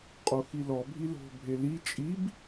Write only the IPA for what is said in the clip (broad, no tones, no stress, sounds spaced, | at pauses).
qʼ o x i l ɔ bʱ i l o̤ bʱ e l i t͡ʃʼ i b